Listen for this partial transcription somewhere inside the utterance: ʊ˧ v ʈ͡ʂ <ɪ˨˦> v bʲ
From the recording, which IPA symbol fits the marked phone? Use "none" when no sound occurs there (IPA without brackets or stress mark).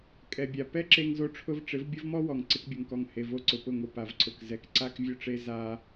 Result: ɪ˨˦